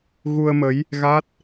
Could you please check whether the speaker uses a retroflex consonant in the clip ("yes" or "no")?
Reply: no